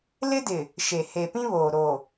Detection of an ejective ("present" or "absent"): absent